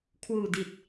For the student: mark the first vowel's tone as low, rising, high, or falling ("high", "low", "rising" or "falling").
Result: low